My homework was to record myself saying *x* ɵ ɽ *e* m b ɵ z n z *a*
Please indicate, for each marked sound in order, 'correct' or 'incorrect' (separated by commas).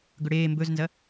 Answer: incorrect, incorrect, incorrect